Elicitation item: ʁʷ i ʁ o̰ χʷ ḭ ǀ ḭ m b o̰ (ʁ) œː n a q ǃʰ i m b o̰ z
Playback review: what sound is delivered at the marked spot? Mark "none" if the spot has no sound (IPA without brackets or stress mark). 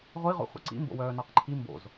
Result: w